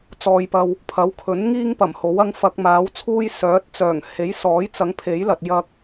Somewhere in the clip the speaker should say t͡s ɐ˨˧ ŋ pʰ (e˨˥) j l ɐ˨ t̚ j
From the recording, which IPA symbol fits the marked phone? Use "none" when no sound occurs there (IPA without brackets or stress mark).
e˨˥